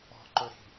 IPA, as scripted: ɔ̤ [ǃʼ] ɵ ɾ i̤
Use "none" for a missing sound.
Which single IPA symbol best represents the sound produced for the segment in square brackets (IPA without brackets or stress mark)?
ǃ